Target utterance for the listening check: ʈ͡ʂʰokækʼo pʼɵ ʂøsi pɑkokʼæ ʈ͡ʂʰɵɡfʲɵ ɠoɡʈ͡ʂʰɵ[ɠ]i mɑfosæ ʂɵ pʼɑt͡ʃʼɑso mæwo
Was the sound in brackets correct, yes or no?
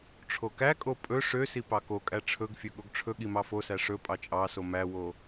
yes